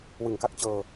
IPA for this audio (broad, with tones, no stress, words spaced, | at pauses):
wɯ˨˩ŋka˦˥k̚t͡ɕɤː˧